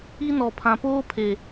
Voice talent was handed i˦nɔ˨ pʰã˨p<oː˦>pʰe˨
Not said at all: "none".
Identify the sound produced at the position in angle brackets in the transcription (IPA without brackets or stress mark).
oː˦